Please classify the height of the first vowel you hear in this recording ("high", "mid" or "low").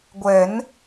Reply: mid